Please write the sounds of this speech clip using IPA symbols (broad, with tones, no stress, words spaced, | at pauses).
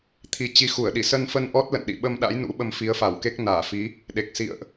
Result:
t̪ʰi˨˩ t͡ɕi˨˦xu˧˩ə̯ɗi˧˩ sə˧nfə˧nʔɔ˦˥t̚lə̰˧˨n ɗḭ˧˨ ɓə˧mɗa̰˧˥jnṵ˧˥ ɓə˧mfi˨˦ə̯fa˧˩wke˦˥k̚ naː˧˩fi˨˦ | ɗe˨˩k̚sḭ˧˨ə̯ʔ